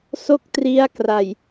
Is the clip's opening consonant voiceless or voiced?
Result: voiceless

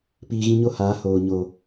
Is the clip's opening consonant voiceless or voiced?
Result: voiceless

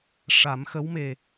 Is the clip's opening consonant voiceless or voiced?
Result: voiceless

